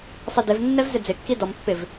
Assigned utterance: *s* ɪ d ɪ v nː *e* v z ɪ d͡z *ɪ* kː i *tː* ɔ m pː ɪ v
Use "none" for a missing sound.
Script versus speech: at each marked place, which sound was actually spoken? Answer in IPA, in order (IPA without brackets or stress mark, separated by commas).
sˤ, ɛ, ɪ, d